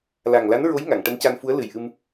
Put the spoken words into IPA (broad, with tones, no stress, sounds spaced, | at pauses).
l a˨˩ ŋ l a˧˥ n ɹ o˧˥ j ŋ a˨˩˨ ŋ ʈ ə˧˥ m c a˧ n f u˧˥ ə̯ l ɨ˨˩ j ʔ ɨ˧ m